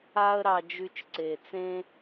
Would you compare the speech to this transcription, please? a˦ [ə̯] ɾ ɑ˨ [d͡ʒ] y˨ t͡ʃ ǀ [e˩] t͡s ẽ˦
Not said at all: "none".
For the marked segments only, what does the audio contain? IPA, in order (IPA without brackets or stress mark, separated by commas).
ə̯, d͡ʒ, e˩